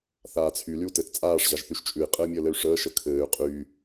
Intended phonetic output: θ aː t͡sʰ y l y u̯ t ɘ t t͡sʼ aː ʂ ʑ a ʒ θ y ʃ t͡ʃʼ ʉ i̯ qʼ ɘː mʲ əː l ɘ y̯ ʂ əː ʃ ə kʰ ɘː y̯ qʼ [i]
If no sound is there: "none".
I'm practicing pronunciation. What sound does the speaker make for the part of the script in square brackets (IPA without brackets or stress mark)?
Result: y